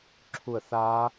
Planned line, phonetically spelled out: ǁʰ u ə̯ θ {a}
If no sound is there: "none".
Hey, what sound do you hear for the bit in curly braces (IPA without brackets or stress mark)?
aː